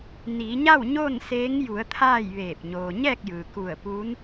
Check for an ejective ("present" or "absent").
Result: absent